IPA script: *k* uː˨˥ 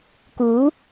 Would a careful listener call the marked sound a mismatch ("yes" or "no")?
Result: no